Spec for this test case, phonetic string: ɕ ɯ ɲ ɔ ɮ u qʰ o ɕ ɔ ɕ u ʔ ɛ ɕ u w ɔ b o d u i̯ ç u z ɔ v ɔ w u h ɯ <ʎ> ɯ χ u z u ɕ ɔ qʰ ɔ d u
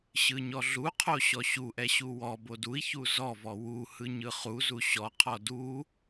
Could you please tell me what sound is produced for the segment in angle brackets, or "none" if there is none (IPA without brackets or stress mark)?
ɲ